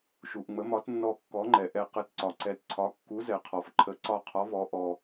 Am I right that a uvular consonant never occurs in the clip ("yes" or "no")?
no